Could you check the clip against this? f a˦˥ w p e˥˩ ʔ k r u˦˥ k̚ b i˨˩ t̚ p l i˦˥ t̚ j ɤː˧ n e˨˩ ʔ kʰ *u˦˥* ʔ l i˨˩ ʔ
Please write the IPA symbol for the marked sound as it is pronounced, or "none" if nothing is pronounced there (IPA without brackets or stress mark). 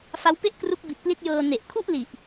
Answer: u˥˩